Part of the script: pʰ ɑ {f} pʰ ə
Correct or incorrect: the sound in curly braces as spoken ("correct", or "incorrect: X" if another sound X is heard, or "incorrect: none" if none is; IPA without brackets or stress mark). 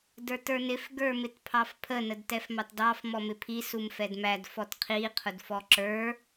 correct